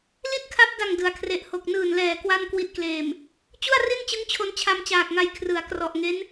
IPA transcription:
l i˥˩ t̚ kʰ a˦˥ p̚ d a˨˩ ŋ d ɯ˩˦ a̯ kʰ r e˨˩ ʔ h o˨˩ k̚ n ɯː˨˩ n l ɛː˨˩ k w a˥˩ n k w i˦˥ t̚ k l eː˨˩ m | t͡ɕ u˥˩ a̯ r i˥˩ n t͡ɕ ɯ˦˥ ŋ t͡ɕʰ o˧ n t͡ɕʰ a˧ m t͡ɕ aː˨˩ k̚ ŋ a˧ j kʰ r ɯ˩˦ a̯ k r ɔ˨˩ ʔ ŋ e˦˥ n

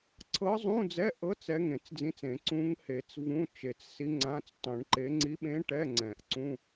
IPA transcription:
ǀʰ ɤ˧˥ zˤ ũ˧˥˧ d͡z ɛ˧˥˧ ʔ ɤ˧˥ t͡s ɛ˧˥ ŋ ẽ˨˩˦ t͡s d͡z ĩ˧˥˧ t͡s ẽ˨˩˦ ǀ ũ˧˥ ŋ h e˨˩˦ t͡s v ũ˧˥˧ t͡ʃ e˨˩˦ t͡s s i˧˥ ŋ͡ǀ ã˧˥˧ t͡s tˤ ũ˨˩˦ ɳ ǃ e˧˥ ŋ͡ǀ i˧˥ ɓ ẽ˧˥ ʈ ɛ˧˥˧ ŋ͡ǀ ɛ̃˨˩˦ ʔ ǀ ũ˧˥˧

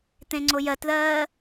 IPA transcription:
t̪ ẽ ŋ͡ǀ o j ɜ t ð ɜː

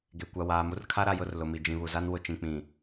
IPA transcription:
ɡ e˨ kʷ a˨ w aː˨ m u˦ r kʰ a˦ ɾ a˨ j ʊ˦˨ r l ʊ˨ m i˨ d͡ʒ ĩ˨ β u˨ z a˦ n w ʊ˨ t͡ʃ ĩ˨ k͡p ĩ˨

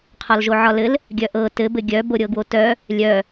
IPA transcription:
qʰ ɒ l ʒ o ʕ ɒ l ɘ l | ɡʲ œ ʔ ɤ t ɘ b ɘ ɡʲ œ b o ɾʲ ɤ ɡ w o t œ | lʲ œ

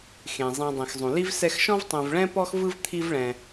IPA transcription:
x ẽ˩ zˤ ĩ˨ dˤ ĩ˩ x zˤ ũ˩ l i˥ v s ɛ˦ x ʃ ɔ̃˥ v tˤ ẽ˨ v ɭ ɛ̃˥ p ɔ˥ x v ɯ˥ v t̪ʰ i˦ v ɭ ɛ̃˩

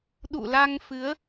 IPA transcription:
ɗ ṵ˧˨ l a˧ ŋ f ɨ˨˦ ə̯

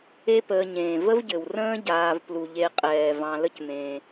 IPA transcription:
e˦ p əː˨ ɲ ẽː˩ v ə˥ v ɟ ɘ˩ w r ə̃ː˥ ɟ aː˨ v p l u˩ ʎ e˨ qʼ ɛː˩ v ɑ̃˨ l ə˦ c m ẽː˩

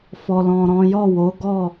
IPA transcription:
f ɔ˨ l ɔ̃˨ ɾ ɔ̃˨˦ j ɔ˦˨ w o˨˦ ɡ ɔ˦˨

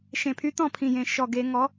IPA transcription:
ʃ ẽ˨˩ pʰ y˧˥ t̪ ɔ̃˦˨ pʰ ĩ˨˩ j ẽ˨˩ ʃ ɔ˨˩ ɡ e˧˩˧ ŋ ɔ˩˥

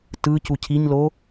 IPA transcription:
t ɯ c u cʰ i ɲ l o

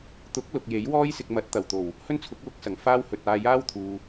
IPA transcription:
t̪ ʊ˨˥ k̚ l ʊ˨ k̚ j e˨˥ j w ɔː˥ j s ɪ˧ k̚ m ɐ˨˥ t̚ t̪ ɐ˨˩ w t̪ o˨˩ w | h ɵ˥ n t͡sʰ ʊ˨˥ k̚ w ʊ˨˥ k̚ s ɐ˨˩ ŋ f aː˥ w h ɵ˧ t̚ aː˧ j aː˥ w t̪ʰ uː˨

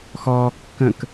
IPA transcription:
x ɔː kː ə̃ k

